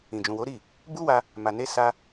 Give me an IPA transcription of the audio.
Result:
ĩ˨ d͡ʒ ũ˨ w o˨˦ ɾ i˦˨ | b u˦ w a˧ | m a˨ n e˧ s a˧

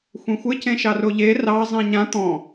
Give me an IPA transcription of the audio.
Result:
xʷ ẽ xʷ ɪ c ẽ ʃ ɑ r o ʎ e r ɑ zˤ ĩ ɲ ã t̪ ɔ̃

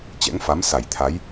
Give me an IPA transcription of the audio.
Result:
t͡ɕ ɛ̰˧˥ ŋ f a˨˦ m s a˧˩ j t̪ʰ a˨˦ j

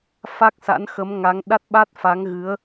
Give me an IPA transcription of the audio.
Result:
f a˦˥ k̚ s a̰˧˥ n x ə˨˦ m ŋ a˨˦ ŋ ɗ a˦˥ t̚ ɓ a˦˥ t̚ f a˨˦ ŋ ɣ ɨ˨˦ ə̯

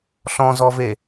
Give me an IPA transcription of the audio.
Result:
ɬ ɔ̃ z ɔ v e

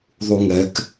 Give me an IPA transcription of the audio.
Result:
ðˤ u ŋ ɛ k

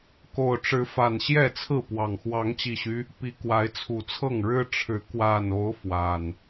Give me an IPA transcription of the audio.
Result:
k o˨˩ ʊ̯ ʈ͡ʂ ɻ̩˨˦ f a˨˩ n ɕ j ɛ˥˨ t͡sʰ ɹ̩˥˨ p w ɑ˨˩ ŋ x w ɑ˨˦ ŋ t͡ɕ i˨˩ ɕ y˦ | p i˨˦ k w a˨˦ ɪ̯ t͡sʰ u˨˩ t͡sʰ ɤ˥˨ ŋ ɻ ɻ̩˦ ʈ͡ʂʰ ɻ̩˨˦ k w a˨˩ n o˨˦ ʊ̯ f w a˨˩ n

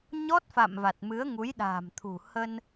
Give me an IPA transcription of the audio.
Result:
ɲ ɔ˦˥ t̚ f a̰˧˨ m v a˨˩ t̚ m ɨ˨˦ ə̯ ŋ u˨˦ j ɗ a̤ː˨˩ m t̪ʰ ṳ˨˩ h ə˧ n

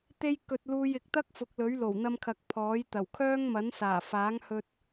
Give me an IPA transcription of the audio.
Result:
t̪ e˥ j k ɵ˧ t̚ l uː˧ j ɪ˨ k̚ t̪ ɐ˥ k̚ f ʊ˨˥ k̚ l ɵ˨˥ ɥ l o˨˩ w n̪ ɐ˧ m kʰ ɐ˨ k̚ pʰ ɔː˨˥ j t̪ ɐ˨˩ w kʰ œː˥ ŋ m ɐ˨˥ n s aː˨˩ f aː˨˥ ŋ h ɵ˧ t̚

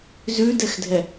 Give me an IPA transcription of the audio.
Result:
z ʉ d ɛ x dʱ ɛ

